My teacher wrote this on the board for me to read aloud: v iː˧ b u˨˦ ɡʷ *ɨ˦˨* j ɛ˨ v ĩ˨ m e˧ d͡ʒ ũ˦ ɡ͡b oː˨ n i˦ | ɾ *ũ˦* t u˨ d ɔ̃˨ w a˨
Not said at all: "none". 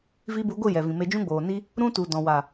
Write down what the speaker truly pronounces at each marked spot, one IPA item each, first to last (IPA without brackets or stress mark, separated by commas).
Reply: ɨ˦˨, ũ˦